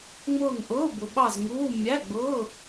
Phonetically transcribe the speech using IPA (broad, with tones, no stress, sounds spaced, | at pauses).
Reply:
ŋ͡m ʊː˦˨ ŋ ʔ ʊː˧˥˧ b ʊ˨ ɓ ɑ˦˨ z ŋ uː˧˥˧ mʲ æ˧˥˧ ɡ͡b ʊː˧˥˧